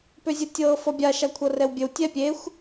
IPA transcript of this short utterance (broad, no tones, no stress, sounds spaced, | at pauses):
p ø zʲ ə tʲ ɤː f ɔ bʲ a ʃ a kʷʰ ɤ r ɛ w bʲ ɘ w tʲ ɛ pʲ e xʷ